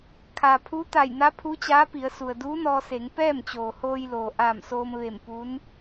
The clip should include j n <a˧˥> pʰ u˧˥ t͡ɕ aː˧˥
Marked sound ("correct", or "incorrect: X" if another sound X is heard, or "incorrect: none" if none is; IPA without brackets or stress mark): correct